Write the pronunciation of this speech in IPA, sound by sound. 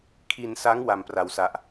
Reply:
kʰi˧nsa˦˥ŋ wa˧mpra˧wsa˦˥ʔ

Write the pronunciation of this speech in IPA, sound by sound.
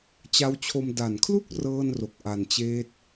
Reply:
t͡ɕa˦˥wt͡ɕʰo˧m da˨˩nkʰlu˥˩k̚ rɤː˥˩nro˨˩k̚ ʔa˨˩nt͡ɕeː˦˥t̚

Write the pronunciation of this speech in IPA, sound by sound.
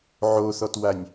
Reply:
ʕoθɔtwanʲ

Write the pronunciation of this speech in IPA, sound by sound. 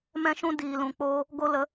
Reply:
mɛ̃˦ʃũ˦diː˨ lũ˨k͡poː˧ | ɡo˦ lə˨˦

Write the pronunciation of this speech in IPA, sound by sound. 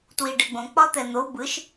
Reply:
twiɖɛɡ͡bõ k͡pɒt̪ɛn̪o bɯʃ

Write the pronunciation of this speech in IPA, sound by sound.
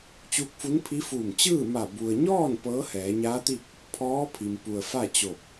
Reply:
t͡ɕuː˧k̚fu˧˥npʰi˧˥fuː˧˩m t͡ɕɯː˥˨ma˧˩ bu˩ə̯ɲɔː˥˨n pɤː˧˥hɛː˩˧ɲaː˧˥t̪i˥˨k̚ | pʰɔː˧˥pʰi˩m pu˩ə̯fa˥˨t͡ɕo˧˩p̚

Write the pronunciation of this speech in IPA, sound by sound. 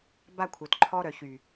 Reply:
ba˦kʷʰœ˨tǃʰɔ˦ ɾœ˨çy˨

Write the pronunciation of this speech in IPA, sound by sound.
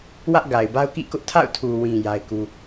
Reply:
wä˦ʔɡa˨ɪ̯ba˦ʊ̯kḭ˦˨ kʊ˦ʔtʰa̰˦˨ʊ̯ tʰu˨wĩ˨ ja˦ɪ̯ku˦

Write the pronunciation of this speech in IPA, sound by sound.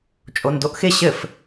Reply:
t͡ʃʼondoʔxɪ ɕɘf

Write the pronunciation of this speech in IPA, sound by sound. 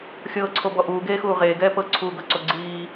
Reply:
xʲɤːǀʰobɔ ʔuːɡeːxuː ʁeːɡɛː pɤǀʰuːɡɤǀo ɡ͡ǀiː

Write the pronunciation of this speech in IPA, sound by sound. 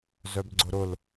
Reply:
zœbɡ͡ǀʊɾʊl

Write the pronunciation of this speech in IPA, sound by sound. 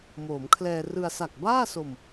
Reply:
moː˩˦mkʰlɛː˧rɯ˧a̯ sa˨˩k̚baː˥˩so˧m

